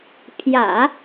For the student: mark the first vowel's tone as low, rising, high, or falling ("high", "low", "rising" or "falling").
low